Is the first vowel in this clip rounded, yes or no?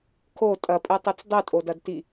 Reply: yes